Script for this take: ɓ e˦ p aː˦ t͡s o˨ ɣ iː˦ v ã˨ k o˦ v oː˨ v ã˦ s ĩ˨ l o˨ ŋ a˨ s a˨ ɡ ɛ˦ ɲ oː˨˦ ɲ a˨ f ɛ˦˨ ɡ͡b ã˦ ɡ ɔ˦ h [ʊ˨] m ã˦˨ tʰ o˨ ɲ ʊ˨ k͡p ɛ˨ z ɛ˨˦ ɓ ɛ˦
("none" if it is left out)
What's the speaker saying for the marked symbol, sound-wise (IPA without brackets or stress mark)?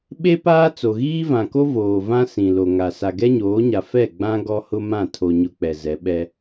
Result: ʊ˦